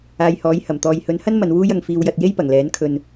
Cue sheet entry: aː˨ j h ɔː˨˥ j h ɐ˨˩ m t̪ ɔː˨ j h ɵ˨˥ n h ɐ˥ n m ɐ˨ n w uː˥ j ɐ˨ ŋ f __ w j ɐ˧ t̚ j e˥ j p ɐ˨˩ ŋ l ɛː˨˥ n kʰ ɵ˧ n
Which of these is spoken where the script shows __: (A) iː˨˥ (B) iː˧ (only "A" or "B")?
B